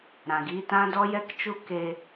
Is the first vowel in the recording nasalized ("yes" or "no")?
yes